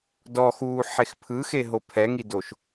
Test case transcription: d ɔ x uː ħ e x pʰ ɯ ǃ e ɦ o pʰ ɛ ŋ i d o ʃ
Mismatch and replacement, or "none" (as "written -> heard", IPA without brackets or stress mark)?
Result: ǃ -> x